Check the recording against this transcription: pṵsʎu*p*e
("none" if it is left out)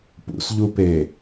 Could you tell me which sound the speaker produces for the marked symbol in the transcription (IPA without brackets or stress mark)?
p